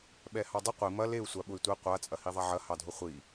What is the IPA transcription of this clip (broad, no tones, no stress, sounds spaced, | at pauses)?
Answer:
ɓ ɛ h ɑ dˤ ʊ qʷ i m ɐ l e u̯ sʷ a ɓ ʊ y̯ tʷ e qʷ a t͡sʼ ɐ h i ðˤ a ʕ ɐ h ɑ dʱ ʊ χʷ i